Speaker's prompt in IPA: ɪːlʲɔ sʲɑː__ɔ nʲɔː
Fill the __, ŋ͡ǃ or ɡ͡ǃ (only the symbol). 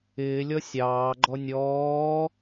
ɡ͡ǃ